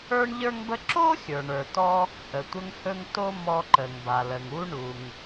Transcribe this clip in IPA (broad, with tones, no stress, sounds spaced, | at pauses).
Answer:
ə˞˥ ɳ ʎ ə˞˥ ŋ b ə˥ ǁ o˥ xʲ ə˞˩ ɳ ə˞˩ t ɔ˥ | ʔ ə˩ tʷ ə˥ ŋ h ɵ˥ ŋ t o˥ m ɔ˥ ǃ ə˩ ŋ b a˩ l ə˩ ŋ u˥ ɳ u˩ ŋ